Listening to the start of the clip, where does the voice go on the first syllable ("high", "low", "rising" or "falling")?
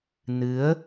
rising